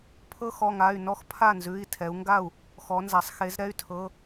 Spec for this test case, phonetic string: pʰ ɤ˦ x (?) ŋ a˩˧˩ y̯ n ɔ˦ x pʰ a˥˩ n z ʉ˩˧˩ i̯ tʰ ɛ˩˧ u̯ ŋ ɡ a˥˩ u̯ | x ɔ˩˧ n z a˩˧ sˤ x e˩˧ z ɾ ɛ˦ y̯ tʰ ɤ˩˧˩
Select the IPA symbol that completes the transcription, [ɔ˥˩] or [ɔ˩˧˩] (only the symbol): ɔ˩˧˩